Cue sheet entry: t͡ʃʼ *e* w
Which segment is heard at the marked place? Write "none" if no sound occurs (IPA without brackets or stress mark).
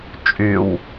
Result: y